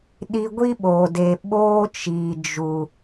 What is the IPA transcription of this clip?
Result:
ɗ i˧ ɡʷ i˦ ɓ o˨ d e˨ ɓ oː˧ t͡ʃ i˨ d͡ʒ u˨

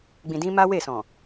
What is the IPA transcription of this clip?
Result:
ɡ͡b ĩ˨ d ĩ˧ m a˦ w e˦˨ s ɔ̃˨

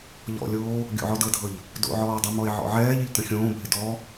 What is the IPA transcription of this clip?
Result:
ʎ ɔ̰ lʲ oː | ɡʲ o̰ ʕ ɔ d ɤ dʱ ɤ ʎ | d o̰ ʕ ɔː dˤ ə m ɔ e̯ ʕ ɔ̰ ʕ ɛː ʎ ɪ ʎ t ə̃ xʲ õː bʱ ɪ d ɔ

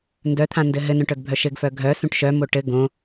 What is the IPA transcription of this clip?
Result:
n d œ t̪ʰ ã n d ɘ ɦ ɘ n œ̃ ʈ œ ɡ bʱ œ ʃ ɘ ɡ f œ ɡʱ œ s ũ ʈ ʃ œ m o ʈ ɘ ɡ õ

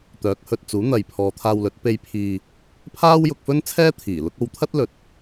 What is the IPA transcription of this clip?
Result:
t̪ œː˨˥ k̚ h ɵ˨ t̚ t͡s uː˨˥ n̪ ɐ˨ j pʰ ɔː˨˧ t̪ʰ aː˧ w l ɵ˨˥ t̚ p e˧ j pʰ iː˨ | pʰ aː˥ w j ʊ˧ k̚ f ɵ˥ n t͡sʰ ɛː˥ t̪ʰ iː˨˩ l ʊ˥ k̚ o˧ w t̪ʰ ɐ˥ t̚ l ɵ˨ t̚

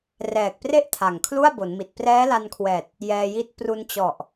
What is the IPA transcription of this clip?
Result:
r ɛː˨˩ k̚ p r e˥˩ ʔ tʰ a˨˩ ŋ kʰ l u˥˩ a̯ b o˩˦ n m i˨˩ t̚ p r ɛː˦˥ l a˧ n kʰ w ɛː˨˩ t̚ | j ɛː˧ j i˦˥ t̚ p r u˧ n t͡ɕ ɔ˨˩ ʔ

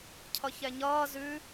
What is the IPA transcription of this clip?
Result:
cʰ ʌ ç ɛ ɲ ʌː z ʉ

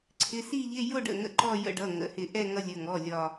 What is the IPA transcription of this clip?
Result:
ǀʰ ɪ˩˧˩ s i˥˧ ʎ ɪ˧˥˧ j ʊ˥˧ ɖ ə̰˧˩ ŋ ə̰˧ ǃ ɔ˥˧ j ə̰˧ ɖ ʌ˩˧˩ ŋ ə̰˩˧˩ h ɪ˧˩ ʔ ɛ˥˧ ŋ ʌ˧ lʲ ə˩˧˩ ŋ ɔ˩˧˩ lʲ ɒ˧˩

